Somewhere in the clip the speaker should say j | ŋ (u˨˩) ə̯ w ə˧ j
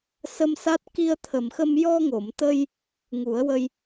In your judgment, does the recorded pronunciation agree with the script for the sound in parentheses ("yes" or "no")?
no